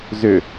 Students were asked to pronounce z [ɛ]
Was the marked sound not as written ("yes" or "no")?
yes